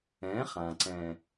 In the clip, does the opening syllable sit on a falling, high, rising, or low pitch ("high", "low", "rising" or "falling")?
rising